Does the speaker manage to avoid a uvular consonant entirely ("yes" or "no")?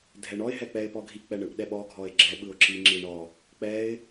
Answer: yes